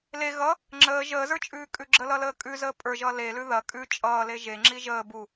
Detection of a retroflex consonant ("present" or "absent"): absent